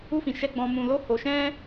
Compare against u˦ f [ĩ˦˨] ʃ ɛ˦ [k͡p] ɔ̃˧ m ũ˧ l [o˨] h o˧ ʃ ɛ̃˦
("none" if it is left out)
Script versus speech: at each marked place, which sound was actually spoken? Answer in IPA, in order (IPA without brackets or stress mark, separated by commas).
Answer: ĩ˧, ɡ͡b, o˦